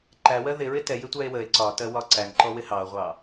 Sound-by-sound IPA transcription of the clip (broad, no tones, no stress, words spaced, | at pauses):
ǃæwɜ ðɪɹɪ tɛjɪtʷæe̯ wəe̯ ǀɒtɜwɒ ǀæŋǃɔwɪ hɑo̯ʁʷɑ